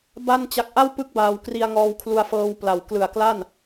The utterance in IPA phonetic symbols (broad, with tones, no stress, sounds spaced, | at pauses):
b a˥˩ n t͡ɕ a˦˥ k̚ ʔ a˥˩ w p ɯ˦˥ k̚ b aː˧ w k r i˧ a̯ ŋ ɔː˧ w kʰ l u˧ a̯ f ɤː˧ w p l a˨˩ w k l ɯ˨˩ a̯ k l a˥˩ n